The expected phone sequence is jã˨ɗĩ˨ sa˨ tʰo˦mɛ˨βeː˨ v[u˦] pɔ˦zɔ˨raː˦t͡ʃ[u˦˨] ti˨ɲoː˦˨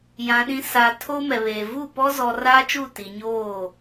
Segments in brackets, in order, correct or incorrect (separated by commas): incorrect, correct